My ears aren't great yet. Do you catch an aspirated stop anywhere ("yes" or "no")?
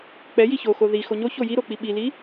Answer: no